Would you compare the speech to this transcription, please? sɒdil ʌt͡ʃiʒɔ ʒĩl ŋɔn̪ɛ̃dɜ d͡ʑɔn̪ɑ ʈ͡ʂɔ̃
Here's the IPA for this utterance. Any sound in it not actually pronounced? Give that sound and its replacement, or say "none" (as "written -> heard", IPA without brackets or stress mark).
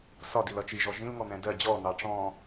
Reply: none